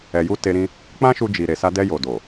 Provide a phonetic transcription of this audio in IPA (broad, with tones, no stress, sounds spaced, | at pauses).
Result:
ɛ˨ j u˧ t e˧ ɾ ĩ˧ | k͡p ã˦ ʃ u˧ d͡ʒ i˨ ɾ e˨ s a˧ d ɛ˧ j o˨ d o˨